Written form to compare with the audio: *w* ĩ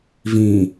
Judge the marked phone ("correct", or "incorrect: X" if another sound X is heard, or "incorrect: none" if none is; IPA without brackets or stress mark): incorrect: v